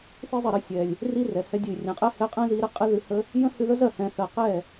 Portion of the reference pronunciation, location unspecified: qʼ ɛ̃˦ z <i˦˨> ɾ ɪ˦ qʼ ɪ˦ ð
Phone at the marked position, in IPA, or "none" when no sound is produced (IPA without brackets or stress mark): i˧